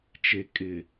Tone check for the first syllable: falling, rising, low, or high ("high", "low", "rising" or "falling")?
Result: low